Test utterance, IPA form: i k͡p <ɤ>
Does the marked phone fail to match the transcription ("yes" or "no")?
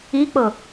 no